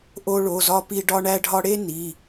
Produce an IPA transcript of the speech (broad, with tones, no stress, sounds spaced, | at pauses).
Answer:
ʔ o˥ ɭ o˧˥˧ z ɒ˥ p i˥ ɖ ɒ˥ ɳ æ˥ ɖʱ ɒ˥ ɽ e˥ n i˧˥˧